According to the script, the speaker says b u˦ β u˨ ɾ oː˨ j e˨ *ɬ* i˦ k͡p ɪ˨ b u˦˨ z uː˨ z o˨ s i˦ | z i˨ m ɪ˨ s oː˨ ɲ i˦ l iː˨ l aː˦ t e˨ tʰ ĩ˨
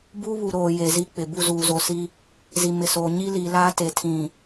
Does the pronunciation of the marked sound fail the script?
yes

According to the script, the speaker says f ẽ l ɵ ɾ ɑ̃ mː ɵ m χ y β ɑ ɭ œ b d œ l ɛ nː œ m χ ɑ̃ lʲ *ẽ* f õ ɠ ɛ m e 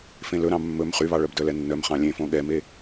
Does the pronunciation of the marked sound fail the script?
no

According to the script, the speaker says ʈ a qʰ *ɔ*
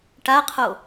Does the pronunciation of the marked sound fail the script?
yes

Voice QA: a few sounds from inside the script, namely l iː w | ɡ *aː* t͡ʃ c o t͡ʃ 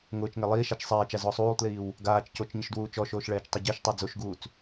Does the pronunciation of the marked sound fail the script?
no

